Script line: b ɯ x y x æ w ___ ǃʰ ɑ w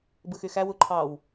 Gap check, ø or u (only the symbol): u